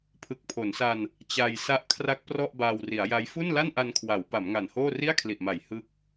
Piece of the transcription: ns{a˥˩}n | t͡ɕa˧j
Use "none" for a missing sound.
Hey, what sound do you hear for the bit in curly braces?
a˧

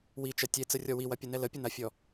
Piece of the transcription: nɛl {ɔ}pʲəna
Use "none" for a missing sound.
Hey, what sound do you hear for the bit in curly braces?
ə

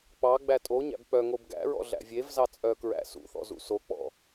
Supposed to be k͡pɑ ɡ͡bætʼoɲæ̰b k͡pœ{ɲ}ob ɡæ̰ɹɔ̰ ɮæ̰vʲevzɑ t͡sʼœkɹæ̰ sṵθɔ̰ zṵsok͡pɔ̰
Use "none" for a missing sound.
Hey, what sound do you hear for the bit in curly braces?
ŋ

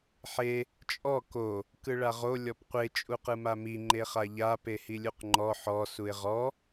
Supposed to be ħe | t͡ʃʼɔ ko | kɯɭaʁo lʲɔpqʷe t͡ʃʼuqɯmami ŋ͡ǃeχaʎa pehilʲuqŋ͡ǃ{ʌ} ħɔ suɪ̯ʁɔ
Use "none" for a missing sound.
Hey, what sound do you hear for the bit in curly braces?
ɔ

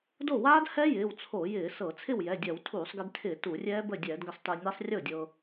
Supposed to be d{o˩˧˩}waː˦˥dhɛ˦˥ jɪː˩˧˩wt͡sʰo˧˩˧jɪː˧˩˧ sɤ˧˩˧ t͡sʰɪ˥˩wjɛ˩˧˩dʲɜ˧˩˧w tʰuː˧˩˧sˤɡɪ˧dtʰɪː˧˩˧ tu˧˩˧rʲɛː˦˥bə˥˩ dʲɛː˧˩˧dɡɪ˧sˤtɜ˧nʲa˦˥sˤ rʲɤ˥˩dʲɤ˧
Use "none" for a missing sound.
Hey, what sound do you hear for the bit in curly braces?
o˥˩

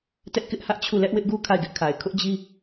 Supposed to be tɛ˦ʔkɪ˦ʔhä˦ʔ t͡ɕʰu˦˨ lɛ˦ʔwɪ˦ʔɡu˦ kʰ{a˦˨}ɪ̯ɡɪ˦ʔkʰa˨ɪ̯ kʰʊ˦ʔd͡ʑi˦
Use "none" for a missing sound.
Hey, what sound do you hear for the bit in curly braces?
a˦˨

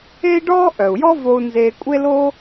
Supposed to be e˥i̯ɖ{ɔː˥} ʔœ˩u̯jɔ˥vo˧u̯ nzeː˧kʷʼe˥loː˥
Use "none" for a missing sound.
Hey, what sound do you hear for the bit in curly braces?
ɔː˥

